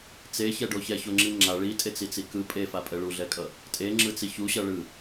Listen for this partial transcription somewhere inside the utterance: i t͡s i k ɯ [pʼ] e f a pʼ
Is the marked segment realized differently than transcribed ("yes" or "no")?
no